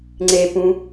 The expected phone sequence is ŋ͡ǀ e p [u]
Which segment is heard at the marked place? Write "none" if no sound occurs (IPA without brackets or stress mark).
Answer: ũ